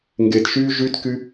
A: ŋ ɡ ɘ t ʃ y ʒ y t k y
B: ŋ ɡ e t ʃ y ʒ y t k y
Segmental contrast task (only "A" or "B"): B